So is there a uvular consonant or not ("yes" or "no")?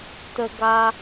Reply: no